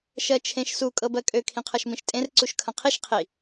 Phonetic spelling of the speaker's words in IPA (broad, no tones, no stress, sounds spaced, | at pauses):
ʃ ɜ t͡ʃʰ ẽ ʃ s u kʼ ɤ b ɜ kʼ ø kʰ ĩ qʰ ɤ ʃ m ĩ ʃ tʼ ẽ r ǀ u ʃ kʰ ɐ̃ qʰ i ʃ qʰ i